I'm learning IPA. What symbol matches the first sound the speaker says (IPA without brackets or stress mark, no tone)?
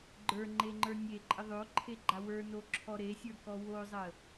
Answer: ɡ͡ǃ